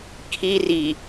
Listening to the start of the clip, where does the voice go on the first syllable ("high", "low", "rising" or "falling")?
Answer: high